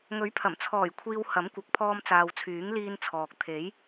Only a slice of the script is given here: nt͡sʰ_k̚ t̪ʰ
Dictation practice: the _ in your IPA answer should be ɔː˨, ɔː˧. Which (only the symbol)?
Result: ɔː˨